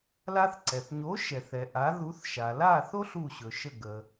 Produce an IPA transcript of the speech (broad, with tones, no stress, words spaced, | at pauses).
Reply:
la˧θǀɛ˩θ ɲo˩˥ ʃɛ˩θɛ˩ ʔa˩˥ðu˩˥θ ʃa˩la˥˩θo˥ɬ u˥˩ɕɵ˩ʃə˥˩ɡə˩